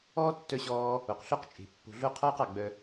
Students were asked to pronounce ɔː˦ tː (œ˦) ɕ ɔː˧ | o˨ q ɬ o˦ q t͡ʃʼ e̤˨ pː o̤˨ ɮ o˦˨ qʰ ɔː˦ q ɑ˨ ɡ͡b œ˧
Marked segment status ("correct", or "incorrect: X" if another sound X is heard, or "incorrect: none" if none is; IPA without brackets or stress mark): incorrect: œ˧